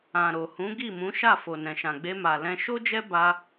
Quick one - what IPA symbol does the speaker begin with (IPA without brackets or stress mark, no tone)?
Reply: ã